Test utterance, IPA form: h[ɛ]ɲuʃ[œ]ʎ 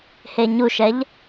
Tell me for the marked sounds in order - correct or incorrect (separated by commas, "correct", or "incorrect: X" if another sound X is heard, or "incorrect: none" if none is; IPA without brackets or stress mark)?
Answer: incorrect: e, incorrect: ɛ